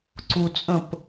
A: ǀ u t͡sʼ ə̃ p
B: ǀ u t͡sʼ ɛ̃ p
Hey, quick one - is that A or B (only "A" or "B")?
A